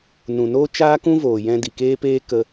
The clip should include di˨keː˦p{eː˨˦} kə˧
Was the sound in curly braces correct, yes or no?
no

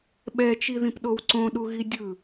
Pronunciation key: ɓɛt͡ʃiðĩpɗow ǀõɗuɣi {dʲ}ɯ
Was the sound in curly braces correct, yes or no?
yes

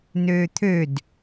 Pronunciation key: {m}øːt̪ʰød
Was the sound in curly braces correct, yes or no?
no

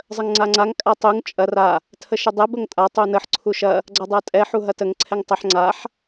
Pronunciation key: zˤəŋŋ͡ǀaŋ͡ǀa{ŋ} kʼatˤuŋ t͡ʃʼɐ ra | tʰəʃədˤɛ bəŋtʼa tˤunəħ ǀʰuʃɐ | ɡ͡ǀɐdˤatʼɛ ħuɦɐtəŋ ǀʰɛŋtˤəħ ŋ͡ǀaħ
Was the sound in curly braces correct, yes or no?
yes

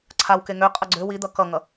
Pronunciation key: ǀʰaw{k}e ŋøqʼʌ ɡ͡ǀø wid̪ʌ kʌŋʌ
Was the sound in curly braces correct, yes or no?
yes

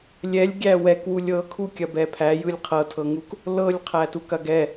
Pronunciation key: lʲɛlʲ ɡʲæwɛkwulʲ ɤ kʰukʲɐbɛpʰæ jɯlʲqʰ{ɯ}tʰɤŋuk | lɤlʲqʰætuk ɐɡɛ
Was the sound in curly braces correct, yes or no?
no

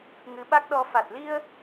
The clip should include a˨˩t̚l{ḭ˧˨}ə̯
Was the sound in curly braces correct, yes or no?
no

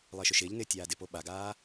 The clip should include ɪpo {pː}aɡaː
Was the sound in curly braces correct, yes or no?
no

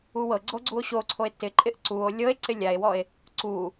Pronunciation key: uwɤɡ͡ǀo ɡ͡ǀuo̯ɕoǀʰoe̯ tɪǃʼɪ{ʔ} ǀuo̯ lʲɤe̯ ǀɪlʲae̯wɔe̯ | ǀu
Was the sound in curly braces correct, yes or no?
yes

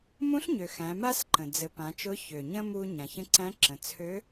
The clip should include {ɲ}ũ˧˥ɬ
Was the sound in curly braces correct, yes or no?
no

